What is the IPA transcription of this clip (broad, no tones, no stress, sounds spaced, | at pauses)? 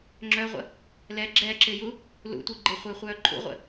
ŋ͡ǁ œ ʁʷ ə̰ | l ɛ ɡ͡ǁ ɛː ǁ ɪː j u | l ṵ tʷ i ɡ͡ǃ ɪ χʷ ɪː χʷ œː ǃʰ ṵ ʁʷ ə̰